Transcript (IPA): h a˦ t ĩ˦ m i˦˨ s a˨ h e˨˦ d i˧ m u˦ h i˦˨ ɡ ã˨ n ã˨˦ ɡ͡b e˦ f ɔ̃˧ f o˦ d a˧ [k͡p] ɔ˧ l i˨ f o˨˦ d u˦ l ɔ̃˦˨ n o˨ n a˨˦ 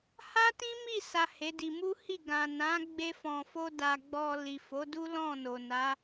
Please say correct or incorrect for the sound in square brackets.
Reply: incorrect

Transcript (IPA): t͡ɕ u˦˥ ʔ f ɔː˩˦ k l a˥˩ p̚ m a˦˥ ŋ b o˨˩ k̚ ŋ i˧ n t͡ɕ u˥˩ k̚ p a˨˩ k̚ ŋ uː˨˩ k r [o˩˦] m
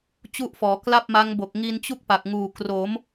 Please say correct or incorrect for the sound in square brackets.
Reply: correct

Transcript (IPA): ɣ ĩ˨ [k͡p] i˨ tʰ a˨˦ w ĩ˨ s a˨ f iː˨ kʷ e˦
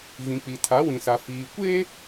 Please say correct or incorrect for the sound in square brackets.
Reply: correct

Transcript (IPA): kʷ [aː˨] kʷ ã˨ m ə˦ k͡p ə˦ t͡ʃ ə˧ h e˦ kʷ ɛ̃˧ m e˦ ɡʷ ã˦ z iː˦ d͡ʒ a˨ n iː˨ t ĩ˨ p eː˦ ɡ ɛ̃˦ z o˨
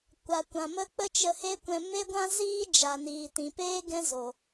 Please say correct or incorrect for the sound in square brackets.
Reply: incorrect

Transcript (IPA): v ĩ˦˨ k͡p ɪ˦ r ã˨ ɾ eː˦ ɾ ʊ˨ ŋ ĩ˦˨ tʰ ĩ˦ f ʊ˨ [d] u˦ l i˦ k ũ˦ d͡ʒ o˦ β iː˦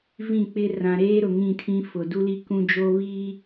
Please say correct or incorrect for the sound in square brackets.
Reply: correct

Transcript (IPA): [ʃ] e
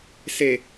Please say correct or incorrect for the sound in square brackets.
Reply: incorrect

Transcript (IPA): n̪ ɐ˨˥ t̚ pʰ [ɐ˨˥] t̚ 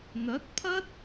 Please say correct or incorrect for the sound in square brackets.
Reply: incorrect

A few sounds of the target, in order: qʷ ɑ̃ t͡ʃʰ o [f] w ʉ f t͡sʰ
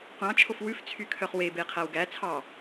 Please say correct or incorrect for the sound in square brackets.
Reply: correct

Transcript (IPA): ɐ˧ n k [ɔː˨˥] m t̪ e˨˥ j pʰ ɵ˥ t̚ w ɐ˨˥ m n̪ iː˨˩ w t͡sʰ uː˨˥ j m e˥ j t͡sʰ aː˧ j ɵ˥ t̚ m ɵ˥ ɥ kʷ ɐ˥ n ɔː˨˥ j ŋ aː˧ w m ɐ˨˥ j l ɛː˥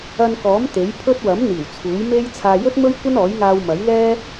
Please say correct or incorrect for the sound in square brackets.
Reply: correct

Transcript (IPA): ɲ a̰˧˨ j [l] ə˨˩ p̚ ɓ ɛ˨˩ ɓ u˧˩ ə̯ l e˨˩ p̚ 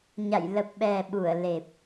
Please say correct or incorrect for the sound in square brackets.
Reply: correct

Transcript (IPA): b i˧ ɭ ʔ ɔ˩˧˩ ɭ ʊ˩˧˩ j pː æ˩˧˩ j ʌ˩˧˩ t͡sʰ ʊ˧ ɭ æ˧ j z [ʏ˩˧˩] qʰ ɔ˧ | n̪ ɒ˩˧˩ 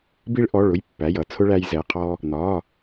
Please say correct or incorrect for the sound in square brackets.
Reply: incorrect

